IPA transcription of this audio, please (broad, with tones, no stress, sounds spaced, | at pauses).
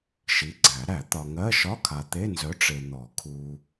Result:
ʃ i˨˥ ɡ͡ǀ æ˨˩˦ ɾ æ˨˩˦ t̪ ɒ˨ ŋ ɜ˧˥˧ ʃ ɒ˧˥˧ kʰ a˨ t̪ e˧˥˧ n z œ˨˥ ʈ͡ʂ e˨ n̪ ɔ˨˩˦ kʰ u˨